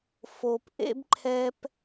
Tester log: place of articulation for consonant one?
labial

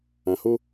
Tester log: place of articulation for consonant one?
glottal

